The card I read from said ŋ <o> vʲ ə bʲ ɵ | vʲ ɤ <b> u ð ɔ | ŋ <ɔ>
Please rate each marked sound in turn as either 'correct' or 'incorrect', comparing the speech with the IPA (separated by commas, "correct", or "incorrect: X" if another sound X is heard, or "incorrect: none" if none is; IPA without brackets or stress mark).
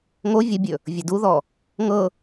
correct, incorrect: d, incorrect: ɤ